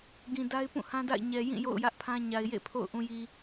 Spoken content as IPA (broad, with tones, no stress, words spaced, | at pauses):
ɡĩ˨ da˦ɪ̯ pũ˦˨hã˦da̰˦˨ɪ̯ ɲɛ˨jĩ˦˨ jo̰˦˨ʊ̯jä˦ʔpʰã˦ ɲa˨ɪ̯jḛ˦˨pʰo̰˦˨ʊ̯ ʔũ˨ji˨